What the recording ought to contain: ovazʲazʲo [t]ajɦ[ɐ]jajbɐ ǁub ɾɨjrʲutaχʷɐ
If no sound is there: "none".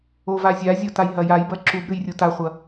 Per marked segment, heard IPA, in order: t, ɐ

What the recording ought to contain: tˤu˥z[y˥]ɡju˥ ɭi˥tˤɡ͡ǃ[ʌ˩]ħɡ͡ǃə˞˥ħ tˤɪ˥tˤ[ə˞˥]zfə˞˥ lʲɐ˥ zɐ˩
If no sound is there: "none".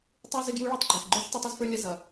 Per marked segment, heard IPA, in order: ɪ˥, ə˞˩, ɐ˥

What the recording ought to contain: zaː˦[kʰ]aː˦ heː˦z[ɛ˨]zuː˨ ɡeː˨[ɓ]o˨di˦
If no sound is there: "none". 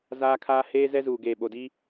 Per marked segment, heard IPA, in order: kʰ, ɛ˦, ɓ

